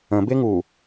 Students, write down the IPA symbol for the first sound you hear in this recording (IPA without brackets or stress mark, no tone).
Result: ə̃